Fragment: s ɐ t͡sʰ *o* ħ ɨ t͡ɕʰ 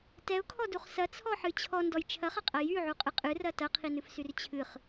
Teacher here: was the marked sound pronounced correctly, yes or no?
no